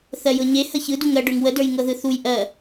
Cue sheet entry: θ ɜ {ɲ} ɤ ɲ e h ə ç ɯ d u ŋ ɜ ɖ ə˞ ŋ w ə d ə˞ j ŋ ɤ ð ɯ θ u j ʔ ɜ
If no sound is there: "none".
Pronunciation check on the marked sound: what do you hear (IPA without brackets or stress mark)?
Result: j